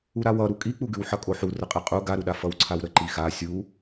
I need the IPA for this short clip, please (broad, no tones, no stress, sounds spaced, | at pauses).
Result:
u ɾ a w ʌ ɾ u kʼ i k͡p u ɡ ʉ w ħ ʌ kʼ o ħ u r ə qʼ i qʼ u ɡ a ɾ u ɗ a f ʌ w ǀʰ a w ɾ ə ǃ i x a sʲ u